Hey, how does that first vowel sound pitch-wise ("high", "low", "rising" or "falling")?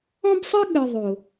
high